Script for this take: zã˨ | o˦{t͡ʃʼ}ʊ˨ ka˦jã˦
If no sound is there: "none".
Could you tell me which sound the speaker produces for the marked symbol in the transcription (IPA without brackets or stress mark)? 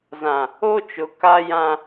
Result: t͡ʃ